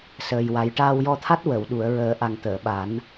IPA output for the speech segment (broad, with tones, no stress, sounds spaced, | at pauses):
s əː˨˩ j w a˨˩˦ j ʈ aː˧ w j ɔ˧ t̪ʰ a˦˥ t̚ w ə˨˩˨ w ɗ u˨˩˨ ə̯ ɹ əː˨˩˦ ʔ a˨˩ ŋ t̪ əː˨˩˨ ɓ a˨˩˦ n